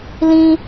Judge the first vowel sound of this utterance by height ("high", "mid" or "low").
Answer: high